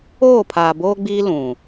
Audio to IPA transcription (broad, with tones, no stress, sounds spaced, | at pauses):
oː˦˨ pʰ aː˨ b oː˦ ɡ͡b iː˦ l ũ˨